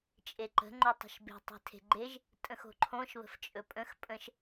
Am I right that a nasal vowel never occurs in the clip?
no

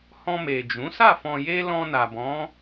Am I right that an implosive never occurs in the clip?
yes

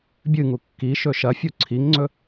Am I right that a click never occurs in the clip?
no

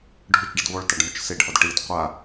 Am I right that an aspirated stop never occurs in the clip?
yes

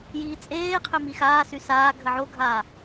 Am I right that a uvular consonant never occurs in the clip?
no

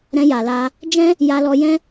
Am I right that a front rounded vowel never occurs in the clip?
yes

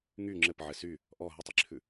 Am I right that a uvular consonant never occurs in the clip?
yes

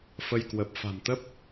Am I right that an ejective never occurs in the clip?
yes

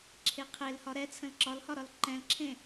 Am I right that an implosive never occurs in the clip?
yes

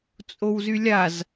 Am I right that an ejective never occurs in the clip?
no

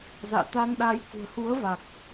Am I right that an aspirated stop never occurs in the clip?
yes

